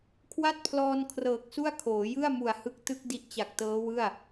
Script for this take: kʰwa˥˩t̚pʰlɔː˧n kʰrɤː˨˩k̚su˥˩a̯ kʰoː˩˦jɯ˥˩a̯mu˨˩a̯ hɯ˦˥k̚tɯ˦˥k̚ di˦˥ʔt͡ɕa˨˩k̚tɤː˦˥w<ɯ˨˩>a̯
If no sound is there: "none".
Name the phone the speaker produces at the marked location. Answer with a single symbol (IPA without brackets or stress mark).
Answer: ɯ˥˩